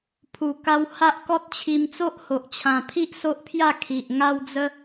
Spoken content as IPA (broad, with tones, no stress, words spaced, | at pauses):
pʰu˨˩ka˧w ha˦ʔkɔ˦t̚t͡ɕʰi˧m t͡so˦ʔho˨ʔt͡ɕʰã˨˩pʰi˦ʔ so˦ʔpʰja˥˧ kʰi˨ʔ ŋa˦wd͡zə˦